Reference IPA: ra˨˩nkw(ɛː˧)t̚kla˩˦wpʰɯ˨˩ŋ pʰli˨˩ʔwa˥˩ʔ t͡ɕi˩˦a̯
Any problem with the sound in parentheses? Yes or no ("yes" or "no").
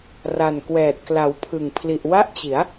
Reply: yes